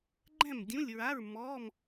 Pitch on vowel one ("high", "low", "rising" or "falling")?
falling